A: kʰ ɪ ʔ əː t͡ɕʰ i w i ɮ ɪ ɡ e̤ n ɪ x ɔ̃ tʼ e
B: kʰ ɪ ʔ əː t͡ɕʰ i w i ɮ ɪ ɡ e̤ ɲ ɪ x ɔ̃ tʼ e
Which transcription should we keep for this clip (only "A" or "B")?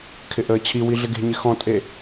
B